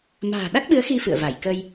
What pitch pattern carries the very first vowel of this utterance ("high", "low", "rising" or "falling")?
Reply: low